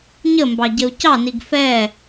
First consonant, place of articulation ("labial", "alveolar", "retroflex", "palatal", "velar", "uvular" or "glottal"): palatal